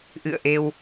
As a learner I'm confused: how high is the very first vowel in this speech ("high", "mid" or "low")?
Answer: high